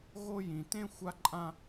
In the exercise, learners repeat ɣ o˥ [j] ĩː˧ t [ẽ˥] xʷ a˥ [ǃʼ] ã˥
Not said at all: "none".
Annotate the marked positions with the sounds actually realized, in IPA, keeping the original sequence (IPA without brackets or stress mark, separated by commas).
j, ẽ˥, ǃʼ